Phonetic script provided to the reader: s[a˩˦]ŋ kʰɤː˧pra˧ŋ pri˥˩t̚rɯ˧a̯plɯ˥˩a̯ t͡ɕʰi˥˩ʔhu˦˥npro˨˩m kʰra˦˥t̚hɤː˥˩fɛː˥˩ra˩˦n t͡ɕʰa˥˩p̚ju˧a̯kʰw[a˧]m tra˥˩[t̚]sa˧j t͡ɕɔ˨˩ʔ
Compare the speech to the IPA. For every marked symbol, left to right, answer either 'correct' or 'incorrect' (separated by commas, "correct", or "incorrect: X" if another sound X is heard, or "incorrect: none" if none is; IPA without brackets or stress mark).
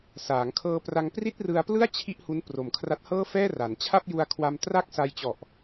incorrect: aː˩˦, correct, incorrect: k̚